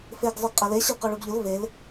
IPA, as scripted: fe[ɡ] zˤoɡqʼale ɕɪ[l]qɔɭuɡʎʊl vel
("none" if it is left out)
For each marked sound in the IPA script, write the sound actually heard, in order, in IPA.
ɡ, l

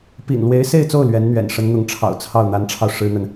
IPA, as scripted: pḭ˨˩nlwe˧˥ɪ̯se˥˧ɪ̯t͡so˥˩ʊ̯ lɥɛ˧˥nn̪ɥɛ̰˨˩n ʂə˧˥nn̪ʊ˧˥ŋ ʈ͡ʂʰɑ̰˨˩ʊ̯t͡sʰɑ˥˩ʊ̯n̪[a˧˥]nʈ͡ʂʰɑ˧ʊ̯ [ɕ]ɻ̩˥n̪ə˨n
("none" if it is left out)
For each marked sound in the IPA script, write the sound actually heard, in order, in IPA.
a˧˥, ʂ

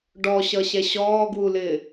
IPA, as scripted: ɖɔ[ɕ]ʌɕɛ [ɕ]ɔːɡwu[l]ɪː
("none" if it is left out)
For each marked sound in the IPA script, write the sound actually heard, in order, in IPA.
ɕ, ɕ, l

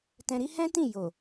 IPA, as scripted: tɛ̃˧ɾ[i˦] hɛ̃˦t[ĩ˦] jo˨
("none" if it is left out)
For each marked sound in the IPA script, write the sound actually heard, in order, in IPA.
i˦, ĩ˦˨

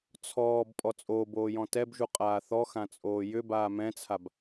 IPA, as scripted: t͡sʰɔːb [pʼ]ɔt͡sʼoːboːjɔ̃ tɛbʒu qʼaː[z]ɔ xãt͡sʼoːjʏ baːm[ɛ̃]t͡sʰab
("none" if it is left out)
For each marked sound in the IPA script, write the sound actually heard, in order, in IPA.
pʼ, θ, ɛ̃

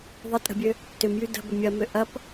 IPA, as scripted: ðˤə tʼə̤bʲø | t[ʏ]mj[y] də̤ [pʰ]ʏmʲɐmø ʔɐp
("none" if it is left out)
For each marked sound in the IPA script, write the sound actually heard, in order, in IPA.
ʏ, y, b

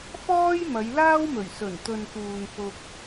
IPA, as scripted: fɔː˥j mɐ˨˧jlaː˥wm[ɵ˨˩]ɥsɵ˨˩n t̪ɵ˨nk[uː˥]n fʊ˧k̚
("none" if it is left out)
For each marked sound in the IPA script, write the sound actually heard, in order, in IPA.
ɵ˨˩, uː˨

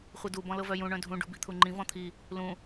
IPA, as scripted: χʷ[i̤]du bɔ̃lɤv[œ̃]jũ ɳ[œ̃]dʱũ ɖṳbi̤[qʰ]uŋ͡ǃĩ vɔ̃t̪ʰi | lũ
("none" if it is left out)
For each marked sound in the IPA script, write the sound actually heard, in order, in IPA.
i, œ, œ̃, t̪ʰ

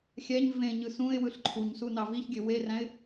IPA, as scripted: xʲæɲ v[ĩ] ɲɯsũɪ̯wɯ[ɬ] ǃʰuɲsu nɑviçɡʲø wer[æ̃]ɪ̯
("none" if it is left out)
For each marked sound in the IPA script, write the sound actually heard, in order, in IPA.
ẽ, ɬ, æ̃

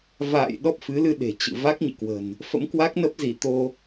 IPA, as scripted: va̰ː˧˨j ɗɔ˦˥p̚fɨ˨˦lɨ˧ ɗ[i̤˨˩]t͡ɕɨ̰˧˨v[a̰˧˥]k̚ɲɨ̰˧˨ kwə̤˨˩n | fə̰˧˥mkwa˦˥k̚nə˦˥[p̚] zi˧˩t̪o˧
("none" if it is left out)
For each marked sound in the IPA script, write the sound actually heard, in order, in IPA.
e̤˨˩, a˦˥, p̚

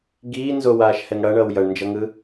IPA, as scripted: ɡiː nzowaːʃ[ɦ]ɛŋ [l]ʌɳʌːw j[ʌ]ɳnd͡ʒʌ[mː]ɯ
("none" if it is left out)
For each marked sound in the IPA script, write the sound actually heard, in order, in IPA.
h, ɽ, ʌ, ŋ

